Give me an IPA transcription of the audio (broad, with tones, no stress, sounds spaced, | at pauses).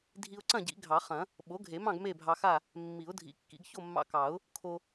dʱ i˧ ʊ̯ ǀ ɐ̃˥˨ ɟ ḭ˨˩˦ ɡʱ ɑ˨˩˦ χ ɐ̃˨˩˦ | ɓ o˩˥ ɡʱ e˨˩˦ m ɑ̃˥˨ ɡ m e˥˨ bʱ ɑ˧ x a˥˨ | mː i˨˩˦ ʊ̯ dʱ ḭ˨˩˦ kː ḭ˨˩˦ ɡ ç o˥˨ mː ɑ̰˧ k ɑ˨˩˦ ʊ̯ | kʰ o˧